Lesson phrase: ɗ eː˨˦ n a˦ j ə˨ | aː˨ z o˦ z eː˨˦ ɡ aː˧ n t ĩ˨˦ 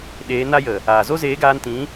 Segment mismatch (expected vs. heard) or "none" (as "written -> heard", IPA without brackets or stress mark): none